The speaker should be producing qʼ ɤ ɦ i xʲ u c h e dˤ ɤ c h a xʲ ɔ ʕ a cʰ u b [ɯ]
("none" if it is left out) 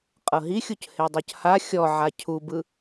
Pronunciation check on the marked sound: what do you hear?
ɯ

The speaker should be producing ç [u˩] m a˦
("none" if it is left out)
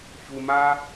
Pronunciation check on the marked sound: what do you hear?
u˩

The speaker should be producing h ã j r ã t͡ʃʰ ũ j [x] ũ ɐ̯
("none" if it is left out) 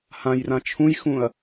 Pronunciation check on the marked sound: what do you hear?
x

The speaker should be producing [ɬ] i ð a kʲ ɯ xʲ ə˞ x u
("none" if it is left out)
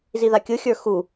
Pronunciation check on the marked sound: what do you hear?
z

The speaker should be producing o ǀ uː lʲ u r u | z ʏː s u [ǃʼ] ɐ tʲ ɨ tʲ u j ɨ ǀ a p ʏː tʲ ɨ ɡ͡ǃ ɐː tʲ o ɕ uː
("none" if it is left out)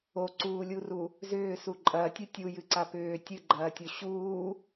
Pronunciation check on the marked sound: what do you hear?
ǃʼ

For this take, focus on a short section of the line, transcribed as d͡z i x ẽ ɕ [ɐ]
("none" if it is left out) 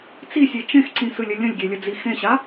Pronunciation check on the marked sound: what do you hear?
a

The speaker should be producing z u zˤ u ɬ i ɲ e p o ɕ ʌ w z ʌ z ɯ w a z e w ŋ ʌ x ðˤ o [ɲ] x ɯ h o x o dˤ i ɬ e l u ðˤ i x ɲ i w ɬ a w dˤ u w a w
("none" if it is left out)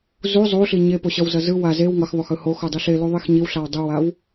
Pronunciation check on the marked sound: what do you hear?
none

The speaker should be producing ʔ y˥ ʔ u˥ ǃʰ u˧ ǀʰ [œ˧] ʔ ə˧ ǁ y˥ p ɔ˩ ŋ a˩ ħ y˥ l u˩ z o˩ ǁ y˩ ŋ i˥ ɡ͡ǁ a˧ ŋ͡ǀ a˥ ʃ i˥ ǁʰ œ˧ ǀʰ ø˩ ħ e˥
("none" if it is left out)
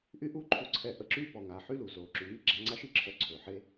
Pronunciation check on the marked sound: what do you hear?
ɛ˧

